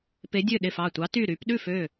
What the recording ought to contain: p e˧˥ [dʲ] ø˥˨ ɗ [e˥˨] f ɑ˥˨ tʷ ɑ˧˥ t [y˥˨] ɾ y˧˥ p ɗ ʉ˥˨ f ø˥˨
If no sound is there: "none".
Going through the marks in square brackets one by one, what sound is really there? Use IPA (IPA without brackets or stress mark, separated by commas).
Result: dʲ, e˥˨, y˥˨